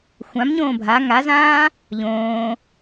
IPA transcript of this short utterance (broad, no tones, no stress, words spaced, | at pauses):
xʷãmɲõː bʱa ŋazãː | ʎõː